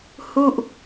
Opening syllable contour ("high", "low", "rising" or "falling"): falling